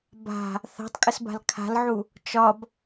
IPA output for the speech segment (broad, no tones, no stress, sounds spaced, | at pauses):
b a̤ | θ a̤ tˤ kʼ ə s b a̤ l kʰ a̤ l ʕ u | t͡ʃ ɒ b